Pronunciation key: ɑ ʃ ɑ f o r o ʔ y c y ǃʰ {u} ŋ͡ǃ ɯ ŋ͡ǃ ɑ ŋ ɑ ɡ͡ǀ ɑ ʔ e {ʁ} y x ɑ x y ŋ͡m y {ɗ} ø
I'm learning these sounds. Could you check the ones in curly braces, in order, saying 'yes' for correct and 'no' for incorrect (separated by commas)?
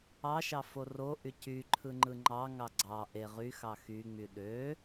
no, yes, yes